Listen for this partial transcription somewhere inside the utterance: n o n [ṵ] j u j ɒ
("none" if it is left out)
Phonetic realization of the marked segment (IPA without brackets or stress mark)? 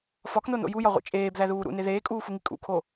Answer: o̰